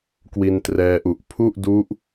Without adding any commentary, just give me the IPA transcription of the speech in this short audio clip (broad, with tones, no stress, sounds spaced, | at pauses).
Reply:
k w i˧ n t r ɛː˧ ʔ u˨˩ ʔ pʰ u˥˩ ʔ d u˦˥ ʔ